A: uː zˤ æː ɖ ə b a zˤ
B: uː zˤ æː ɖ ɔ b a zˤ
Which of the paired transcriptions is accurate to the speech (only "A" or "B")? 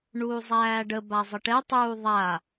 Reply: A